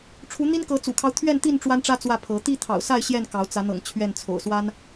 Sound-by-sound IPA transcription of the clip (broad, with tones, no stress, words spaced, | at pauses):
ʈ͡ʂʰu˨˦n̪i˦n kɤ˨˦t͡sṵ˨˩kʰɑ˦ʊ̯ t̪ʰɥɛ˥˨nt̪i˥˨n ʈ͡ʂwa˦nʈ͡ʂä˦ t͡swä˥˨pʰɤ˨˦ t̪i˥˨t̪ʰɑ̰˨˩ʊ̯sa˥˨ɪ̯ ɕjɛ˥˨nkɑ˨˦ʊ̯ t͡sä˨˦n̪ɤ̰˨˩ŋ t͡ɕʰɥɛ˥˨n t͡sʰo̰˨˩ʊ̯swa˦n